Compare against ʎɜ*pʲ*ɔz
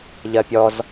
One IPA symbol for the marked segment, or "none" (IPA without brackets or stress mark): pʲ